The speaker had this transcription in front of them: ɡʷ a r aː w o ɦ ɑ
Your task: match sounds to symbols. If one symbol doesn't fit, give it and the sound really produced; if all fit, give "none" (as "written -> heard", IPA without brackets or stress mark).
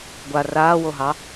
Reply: none